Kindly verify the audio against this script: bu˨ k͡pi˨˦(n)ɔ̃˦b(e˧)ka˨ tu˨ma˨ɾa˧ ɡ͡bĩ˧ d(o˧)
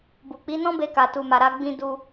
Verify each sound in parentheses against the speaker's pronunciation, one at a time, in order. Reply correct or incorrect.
correct, correct, incorrect

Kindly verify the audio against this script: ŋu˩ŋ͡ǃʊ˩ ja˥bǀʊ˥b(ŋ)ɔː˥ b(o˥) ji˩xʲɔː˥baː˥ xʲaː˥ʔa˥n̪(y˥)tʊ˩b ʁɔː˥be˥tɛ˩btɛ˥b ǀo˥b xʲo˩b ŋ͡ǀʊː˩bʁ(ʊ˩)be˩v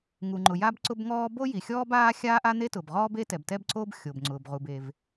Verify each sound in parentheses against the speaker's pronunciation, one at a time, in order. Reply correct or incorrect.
correct, correct, incorrect, incorrect

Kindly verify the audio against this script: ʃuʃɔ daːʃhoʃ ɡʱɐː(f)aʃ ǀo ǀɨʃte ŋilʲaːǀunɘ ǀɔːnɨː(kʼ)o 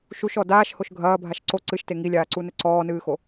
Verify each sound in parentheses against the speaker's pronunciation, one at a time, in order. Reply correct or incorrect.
incorrect, incorrect

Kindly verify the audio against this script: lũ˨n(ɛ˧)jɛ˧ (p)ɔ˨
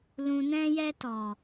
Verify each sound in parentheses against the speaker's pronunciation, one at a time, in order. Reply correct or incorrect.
incorrect, incorrect

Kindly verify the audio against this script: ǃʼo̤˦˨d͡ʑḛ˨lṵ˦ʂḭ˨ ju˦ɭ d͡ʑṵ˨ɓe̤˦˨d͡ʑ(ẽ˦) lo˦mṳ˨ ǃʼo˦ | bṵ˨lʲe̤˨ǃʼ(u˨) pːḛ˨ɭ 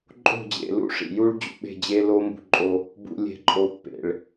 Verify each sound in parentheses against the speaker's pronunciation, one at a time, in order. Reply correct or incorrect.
incorrect, incorrect

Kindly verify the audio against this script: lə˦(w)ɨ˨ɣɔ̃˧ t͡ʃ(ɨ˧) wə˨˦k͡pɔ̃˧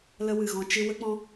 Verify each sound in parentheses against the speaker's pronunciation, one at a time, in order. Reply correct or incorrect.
correct, correct

